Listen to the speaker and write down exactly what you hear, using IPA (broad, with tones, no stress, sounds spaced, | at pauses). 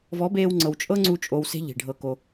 v ɔ˨˦ b eː˧ w ŋ͡ǀ ɤ˨ w t͡ʃʼ ɤ˦ ŋ͡ǀ u˧ t͡ʃʼ o˧ w s e̤˦ ʎ i̤˨ ɖʱ ɤ˧ k o˧